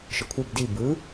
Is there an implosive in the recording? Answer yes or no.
no